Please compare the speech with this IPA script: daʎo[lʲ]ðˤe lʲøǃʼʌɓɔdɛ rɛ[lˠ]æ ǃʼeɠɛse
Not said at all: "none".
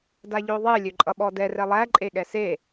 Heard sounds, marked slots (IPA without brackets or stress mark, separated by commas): none, lˠ